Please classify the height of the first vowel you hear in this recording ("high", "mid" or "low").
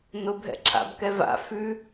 high